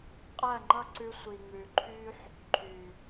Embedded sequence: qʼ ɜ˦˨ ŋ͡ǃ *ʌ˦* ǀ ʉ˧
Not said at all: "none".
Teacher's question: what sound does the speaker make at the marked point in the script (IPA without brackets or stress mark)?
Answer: ʌ˦